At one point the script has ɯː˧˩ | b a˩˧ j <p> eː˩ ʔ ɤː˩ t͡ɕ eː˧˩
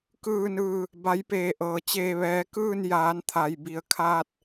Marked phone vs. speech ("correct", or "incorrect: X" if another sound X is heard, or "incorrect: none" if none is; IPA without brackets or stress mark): correct